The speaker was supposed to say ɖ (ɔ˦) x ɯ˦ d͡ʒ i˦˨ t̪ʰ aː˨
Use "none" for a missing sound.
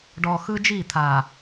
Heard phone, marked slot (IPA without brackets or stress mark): ɔ˨